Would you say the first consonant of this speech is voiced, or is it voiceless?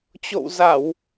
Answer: voiceless